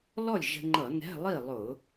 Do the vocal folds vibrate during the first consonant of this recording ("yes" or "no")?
yes